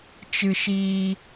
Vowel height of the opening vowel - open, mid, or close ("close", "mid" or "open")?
close